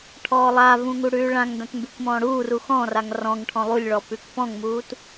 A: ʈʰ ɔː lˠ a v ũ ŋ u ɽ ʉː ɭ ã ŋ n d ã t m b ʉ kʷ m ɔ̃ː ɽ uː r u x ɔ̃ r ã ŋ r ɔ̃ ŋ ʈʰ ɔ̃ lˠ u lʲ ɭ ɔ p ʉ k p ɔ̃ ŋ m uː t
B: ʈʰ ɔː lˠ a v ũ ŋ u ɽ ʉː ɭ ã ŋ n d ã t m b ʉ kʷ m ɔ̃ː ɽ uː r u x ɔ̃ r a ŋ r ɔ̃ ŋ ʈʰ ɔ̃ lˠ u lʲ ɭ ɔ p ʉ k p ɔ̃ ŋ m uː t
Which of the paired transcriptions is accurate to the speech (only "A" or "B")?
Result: B